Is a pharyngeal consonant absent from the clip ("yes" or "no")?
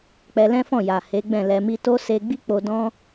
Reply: yes